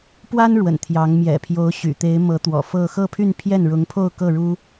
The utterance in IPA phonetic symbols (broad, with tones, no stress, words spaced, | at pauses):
pwa˥n ɻwə̰˨˩nt̪ʰjɑ˧˥ŋ mjɛ̰˨˩pʰjo˧˥ʊ̯ɕy̰˨˩t̪e˧˥ɪ̯ mɤ˧˥t̪wɔ̰˨˩fɤ˥˧ xɤ˥˧pʰy˥˧npʰjɛ˥˩n ɻʊ˧˥ŋpʰo˥˧ʊ̯kɤ˥˩ɻu˥